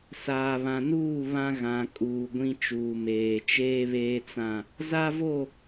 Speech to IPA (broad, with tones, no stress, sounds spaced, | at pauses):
s aː˨ β ã˨ n uː˦˨ β ã˦ ɣ ã˨ kʼ uː˨ ɡʷ ĩ˦ t͡ʃ uː˨ m eː˨ t͡ʃ eː˦ β eː˦ t͡s ã˦˨ | z a˦ v o˦˨